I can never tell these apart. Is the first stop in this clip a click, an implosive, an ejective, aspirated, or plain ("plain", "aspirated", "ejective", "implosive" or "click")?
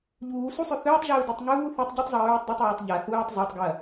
plain